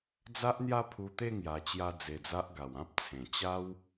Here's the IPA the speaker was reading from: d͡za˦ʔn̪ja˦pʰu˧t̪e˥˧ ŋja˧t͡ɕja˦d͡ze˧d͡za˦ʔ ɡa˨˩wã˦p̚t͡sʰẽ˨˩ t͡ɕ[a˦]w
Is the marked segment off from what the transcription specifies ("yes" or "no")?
no